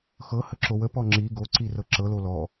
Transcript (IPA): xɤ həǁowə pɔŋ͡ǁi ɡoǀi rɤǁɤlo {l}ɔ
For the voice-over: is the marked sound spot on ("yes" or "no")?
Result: yes